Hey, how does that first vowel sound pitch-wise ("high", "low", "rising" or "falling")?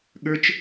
high